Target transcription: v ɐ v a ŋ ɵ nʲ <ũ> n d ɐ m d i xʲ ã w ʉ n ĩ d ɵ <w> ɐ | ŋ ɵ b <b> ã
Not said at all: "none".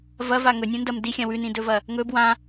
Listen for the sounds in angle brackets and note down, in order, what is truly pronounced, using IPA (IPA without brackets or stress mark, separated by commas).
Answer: ũ, v, w